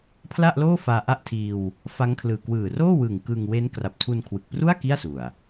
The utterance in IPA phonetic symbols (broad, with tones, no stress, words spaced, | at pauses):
pʰla˥˩ʔloː˥˩ faː˧ʔa˥˩ʔtʰiː˧w | fa˦˥ŋkʰlɯː˨˩ kwɯː˨˩roː˥˩wɯ˨˩ŋ kɯː˧ŋwe˦˥n kra˨˩p̚tʰu˧nkʰwɯ˨˩k̚pru˥˩a̯ ki˥˩a̯su˨˩a̯